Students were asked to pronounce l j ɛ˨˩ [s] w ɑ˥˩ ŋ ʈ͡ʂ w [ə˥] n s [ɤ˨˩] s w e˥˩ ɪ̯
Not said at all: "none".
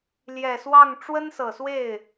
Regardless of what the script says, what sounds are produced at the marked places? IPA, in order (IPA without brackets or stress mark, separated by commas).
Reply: s, ə˥, ɤ˨˩